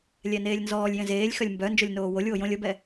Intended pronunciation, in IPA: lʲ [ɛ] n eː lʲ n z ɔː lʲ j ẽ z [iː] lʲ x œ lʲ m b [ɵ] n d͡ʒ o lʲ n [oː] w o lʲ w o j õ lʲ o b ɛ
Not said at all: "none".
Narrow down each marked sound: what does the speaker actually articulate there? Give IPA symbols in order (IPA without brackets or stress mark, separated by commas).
ɛ, eː, œ, oː